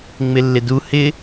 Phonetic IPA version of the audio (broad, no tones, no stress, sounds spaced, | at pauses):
ŋ͡m ɪ lː ɪ d u h ɪ